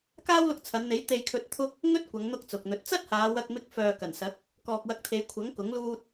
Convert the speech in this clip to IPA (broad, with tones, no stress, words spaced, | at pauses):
kaː˥wlʊ˧k̚t͡sʰɐ˨˧nn̪e˨˥j t̪e˧jkʰɵ˧t̚ t̪ʰʊ˥k̚ | ŋɵ˥t̚kʷɐ˨˧ŋn̪ʊ˧k̚ t͡sʊ˨k̚n̪ɵ˧t̚ t͡sɐ˥t̚haː˨˧w ɐ˧k̚mɪ˧k̚ fœː˨kɐ˨˩nsɐ˨˥k̚ | kɔː˨k̚wɐ˨˥k̚t̪ʰe˨˧j kʷʰɐ˨˥ŋ kʊ˨˥ŋluː˥t̚